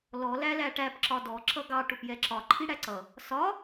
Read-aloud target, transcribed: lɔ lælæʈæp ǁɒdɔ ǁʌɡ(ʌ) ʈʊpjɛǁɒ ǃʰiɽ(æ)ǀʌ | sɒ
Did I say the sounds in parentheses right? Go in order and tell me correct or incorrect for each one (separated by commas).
incorrect, correct